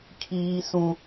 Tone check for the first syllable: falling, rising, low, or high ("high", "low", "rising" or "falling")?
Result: high